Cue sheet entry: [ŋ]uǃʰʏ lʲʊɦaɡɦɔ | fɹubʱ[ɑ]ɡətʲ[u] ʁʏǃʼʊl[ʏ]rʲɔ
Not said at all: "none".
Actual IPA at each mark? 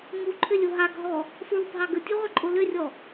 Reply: ŋ, ɑ, u, ʏ

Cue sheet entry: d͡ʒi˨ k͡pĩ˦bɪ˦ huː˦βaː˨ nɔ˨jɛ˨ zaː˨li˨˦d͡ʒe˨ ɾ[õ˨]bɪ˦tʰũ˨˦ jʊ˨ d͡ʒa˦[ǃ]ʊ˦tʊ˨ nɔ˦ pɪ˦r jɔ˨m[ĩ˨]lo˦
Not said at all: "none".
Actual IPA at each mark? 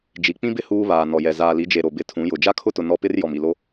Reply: o˨, kʰ, i˨

